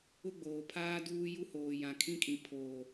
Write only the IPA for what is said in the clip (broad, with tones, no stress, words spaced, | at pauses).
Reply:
ʊ˦ɡ͡boː˨pʰaː˦ duː˦ ju˦ hoː˨ jã˨kʰĩ˦kʼĩ˨ pʰoː˨